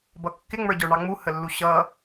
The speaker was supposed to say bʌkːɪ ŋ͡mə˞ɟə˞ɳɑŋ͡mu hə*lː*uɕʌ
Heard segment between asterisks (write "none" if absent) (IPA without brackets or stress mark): lː